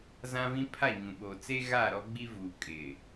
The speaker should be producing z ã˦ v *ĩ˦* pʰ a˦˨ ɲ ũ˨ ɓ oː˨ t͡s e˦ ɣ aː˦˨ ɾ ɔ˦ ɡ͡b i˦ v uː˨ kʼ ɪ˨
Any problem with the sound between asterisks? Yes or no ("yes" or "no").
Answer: no